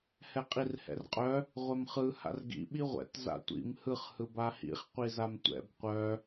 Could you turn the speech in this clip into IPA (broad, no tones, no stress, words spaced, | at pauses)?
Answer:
hɛqʼirhɛ̰rqʼœ | ʁʷɛmχɯ ha̰rɡḭ ɓiʁʷɛ̰t za̰tʷḭm hɯχ hɯbahḭχ qʷizamtʷɛ̰b qʷœ